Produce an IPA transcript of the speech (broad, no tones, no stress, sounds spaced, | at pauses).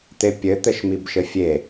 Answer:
t̪ e pʲ ɘ t̪ ɘ ʃ m i b ʃ ɘ fʲ e